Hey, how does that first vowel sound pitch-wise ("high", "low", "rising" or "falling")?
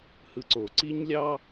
low